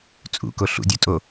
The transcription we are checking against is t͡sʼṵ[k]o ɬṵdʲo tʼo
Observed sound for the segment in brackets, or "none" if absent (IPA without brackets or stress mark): k